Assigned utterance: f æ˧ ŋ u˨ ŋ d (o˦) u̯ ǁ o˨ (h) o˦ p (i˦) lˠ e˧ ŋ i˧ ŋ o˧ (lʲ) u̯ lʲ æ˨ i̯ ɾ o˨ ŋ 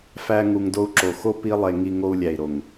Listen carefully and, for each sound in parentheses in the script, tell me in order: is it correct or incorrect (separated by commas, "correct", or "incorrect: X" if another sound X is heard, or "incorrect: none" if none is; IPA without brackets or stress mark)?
incorrect: o˧, incorrect: x, correct, incorrect: none